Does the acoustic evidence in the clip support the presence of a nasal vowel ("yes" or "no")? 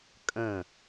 yes